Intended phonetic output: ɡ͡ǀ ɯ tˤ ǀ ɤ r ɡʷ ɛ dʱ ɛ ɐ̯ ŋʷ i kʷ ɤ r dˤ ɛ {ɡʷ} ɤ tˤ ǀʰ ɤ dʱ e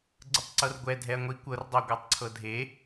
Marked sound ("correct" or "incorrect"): correct